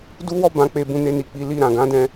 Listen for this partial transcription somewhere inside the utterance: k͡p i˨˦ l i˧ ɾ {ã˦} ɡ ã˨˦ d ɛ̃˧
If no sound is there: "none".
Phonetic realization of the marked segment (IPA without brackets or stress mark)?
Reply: ã˨